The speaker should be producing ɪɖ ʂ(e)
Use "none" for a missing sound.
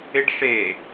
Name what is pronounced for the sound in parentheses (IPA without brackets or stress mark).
e